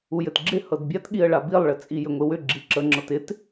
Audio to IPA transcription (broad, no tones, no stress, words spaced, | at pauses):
ujɘtɡ͡ǁɪ hɤdbʲatɠiə̯ ɭabilˠɭɘ t͡sʼijʏŋʷɪwʏ ɡ͡ǁiǁə ŋ͡ǁɤtɪt